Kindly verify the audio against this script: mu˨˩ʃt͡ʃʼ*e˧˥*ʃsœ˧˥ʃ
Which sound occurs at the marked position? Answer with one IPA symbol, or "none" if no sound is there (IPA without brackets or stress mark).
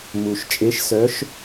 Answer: e˧˥